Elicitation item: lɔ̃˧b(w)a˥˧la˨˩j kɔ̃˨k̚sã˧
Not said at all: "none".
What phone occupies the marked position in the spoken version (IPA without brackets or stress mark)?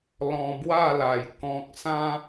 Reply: w